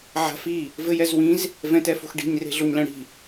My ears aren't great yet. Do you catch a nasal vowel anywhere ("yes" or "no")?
yes